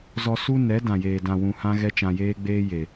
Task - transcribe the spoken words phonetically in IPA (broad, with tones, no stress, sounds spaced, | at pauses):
z ɔ˧ s u˦ n ɛ˨˦ d ã˨ j eː˨ d ã˨ w ũ˨ h ã˦ ɣ ɛ˦ t͡ʃ ã˧ j eː˦ ɡ͡b eː˦ j e˨